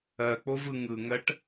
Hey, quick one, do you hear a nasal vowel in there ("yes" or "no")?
no